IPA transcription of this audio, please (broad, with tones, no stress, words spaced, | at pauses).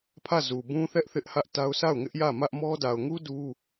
pʰä˦˨zu˨bũ˦θɛ˦ʔ θɪ˦ʔhä˦ʔta˦ʊ̯ sa˦˨ʊ̯ŋɪ˦ʔjä˦˨ mä˦ʔmɔ˦ da˨ʊ̯ŋu˦ du˦